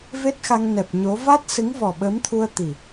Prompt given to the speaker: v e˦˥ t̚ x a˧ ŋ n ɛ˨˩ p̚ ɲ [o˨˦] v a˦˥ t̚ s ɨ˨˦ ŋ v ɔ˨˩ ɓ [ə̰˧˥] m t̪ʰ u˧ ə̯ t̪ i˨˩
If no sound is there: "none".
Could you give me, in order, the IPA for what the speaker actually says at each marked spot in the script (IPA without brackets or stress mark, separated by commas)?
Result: o˨˦, ə˨˦